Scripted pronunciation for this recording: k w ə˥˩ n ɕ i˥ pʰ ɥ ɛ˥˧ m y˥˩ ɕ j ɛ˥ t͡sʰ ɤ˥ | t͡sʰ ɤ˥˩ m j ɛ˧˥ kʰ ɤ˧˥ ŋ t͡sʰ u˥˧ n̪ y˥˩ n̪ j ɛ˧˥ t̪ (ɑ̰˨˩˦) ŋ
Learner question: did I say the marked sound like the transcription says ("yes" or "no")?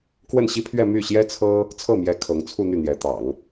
yes